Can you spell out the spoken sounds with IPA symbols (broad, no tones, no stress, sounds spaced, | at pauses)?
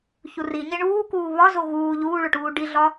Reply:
ç u r i ɲ e ɳ uː k uː β ɒ z o ɣ uː ʎ uː ɭ o ʈ uː ɖ i ɮ ɒ